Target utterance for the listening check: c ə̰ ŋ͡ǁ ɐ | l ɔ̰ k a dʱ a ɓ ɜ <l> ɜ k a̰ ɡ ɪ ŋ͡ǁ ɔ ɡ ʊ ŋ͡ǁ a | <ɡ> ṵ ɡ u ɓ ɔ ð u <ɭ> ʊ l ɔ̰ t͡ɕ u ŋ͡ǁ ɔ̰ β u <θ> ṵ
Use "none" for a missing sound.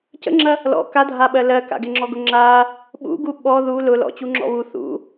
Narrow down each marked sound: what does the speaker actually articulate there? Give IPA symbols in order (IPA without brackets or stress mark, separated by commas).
l, ɓ, l, θ